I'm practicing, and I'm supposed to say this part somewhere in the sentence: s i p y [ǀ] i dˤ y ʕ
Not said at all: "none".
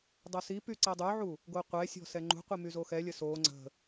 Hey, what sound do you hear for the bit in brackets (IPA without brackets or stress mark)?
ǀ